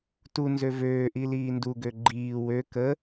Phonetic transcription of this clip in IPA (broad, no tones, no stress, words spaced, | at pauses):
tunzø vøːʔi liːnduɡø ɡ͡ǃiː wø kə